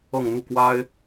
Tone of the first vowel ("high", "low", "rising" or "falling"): falling